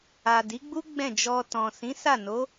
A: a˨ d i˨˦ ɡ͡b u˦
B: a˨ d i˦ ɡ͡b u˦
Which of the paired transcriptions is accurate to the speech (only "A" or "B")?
A